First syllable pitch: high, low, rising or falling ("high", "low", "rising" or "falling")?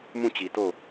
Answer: falling